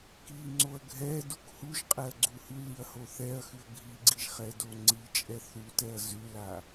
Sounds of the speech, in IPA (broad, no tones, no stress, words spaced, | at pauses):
kiŋ͡ǀoɐ̯ ɡʱɛ dukhuʒqʼɛɐ̯ ɡ͡ǀuhʉliɐ̯ hoθɛɐ̯xʉɐ̯ ɡʱiɡ͡ǀiʒ χɛdoŋ͡ǀit͡ʃʼɛ θutɛɐ̯ zʉla